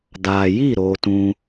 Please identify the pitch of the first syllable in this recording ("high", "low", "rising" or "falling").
low